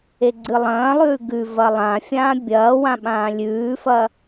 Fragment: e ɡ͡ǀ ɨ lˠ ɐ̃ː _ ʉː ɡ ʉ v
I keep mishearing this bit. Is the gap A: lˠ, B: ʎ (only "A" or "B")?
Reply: A